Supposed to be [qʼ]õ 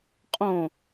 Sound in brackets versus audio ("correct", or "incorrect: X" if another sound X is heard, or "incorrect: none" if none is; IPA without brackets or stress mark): correct